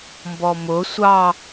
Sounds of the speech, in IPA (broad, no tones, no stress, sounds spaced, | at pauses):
m b ɔ m ʊ sʷ ɑ